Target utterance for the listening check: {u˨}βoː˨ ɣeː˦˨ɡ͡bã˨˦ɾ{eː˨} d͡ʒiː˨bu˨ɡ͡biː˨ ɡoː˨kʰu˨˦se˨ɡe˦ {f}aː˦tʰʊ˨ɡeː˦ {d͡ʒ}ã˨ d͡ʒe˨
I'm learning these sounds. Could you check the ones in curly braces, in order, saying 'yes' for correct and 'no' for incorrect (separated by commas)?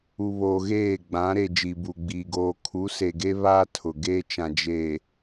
yes, no, no, no